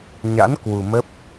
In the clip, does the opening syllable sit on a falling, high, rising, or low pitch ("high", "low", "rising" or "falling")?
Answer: rising